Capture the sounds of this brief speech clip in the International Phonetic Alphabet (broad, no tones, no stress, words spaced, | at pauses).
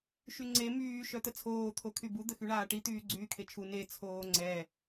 ʃyŋ͡ǀe myː ʃœt̪ət͡sʰoː t̪ʰokʰybu d̪əxyɳaːʈi t̪yːɡ͡ǀyːkʰet͡ʃʰu ne t͡sʰoːŋ͡ǀɛ